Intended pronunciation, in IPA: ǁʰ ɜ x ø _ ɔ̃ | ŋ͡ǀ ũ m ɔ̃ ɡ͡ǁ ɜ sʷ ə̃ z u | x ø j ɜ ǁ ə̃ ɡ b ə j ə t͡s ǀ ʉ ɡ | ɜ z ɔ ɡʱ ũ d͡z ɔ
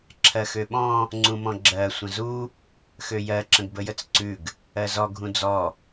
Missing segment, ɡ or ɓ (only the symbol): ɓ